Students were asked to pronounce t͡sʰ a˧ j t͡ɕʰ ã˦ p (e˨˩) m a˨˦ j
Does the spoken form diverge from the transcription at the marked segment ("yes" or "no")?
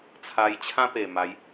no